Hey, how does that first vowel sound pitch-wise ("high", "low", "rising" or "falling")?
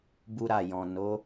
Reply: high